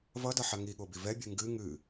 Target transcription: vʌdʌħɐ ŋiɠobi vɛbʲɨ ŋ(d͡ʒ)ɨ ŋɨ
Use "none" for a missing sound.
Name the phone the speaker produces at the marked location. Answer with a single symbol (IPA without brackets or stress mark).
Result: ɡ